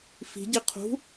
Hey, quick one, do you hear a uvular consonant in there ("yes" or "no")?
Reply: yes